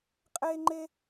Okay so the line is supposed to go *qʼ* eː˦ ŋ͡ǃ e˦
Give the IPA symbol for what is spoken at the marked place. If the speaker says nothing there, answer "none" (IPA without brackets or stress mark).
qʼ